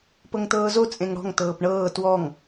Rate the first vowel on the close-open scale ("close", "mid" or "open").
mid